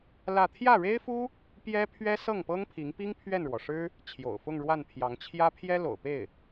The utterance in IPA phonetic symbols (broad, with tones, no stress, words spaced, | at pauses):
lä˥˧ t̪ʰjä˥˩ɻe˥ɪ̯fu˥ | pjɛ˥pʰɥɛ˥ sɤ˥˩ŋpɤ˥ŋpʰi˧˥ŋpi˥ŋ pʰɥɛ˥˩nɻwɔ˩ʂɻ̩˥ | t͡ɕʰjo̰˨˩ʊ̯fʊ˥˧ŋɻwa˥˩npʰjɑ˧˥ŋ t͡ɕʰjä˥ pʰjɛ˥ lo̰˨˩ʊ̯pe˥˩ɪ̯